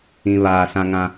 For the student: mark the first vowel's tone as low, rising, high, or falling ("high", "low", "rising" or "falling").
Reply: low